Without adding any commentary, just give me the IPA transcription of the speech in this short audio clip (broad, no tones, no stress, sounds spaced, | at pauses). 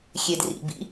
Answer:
xʲ e d r ḭ b ḭ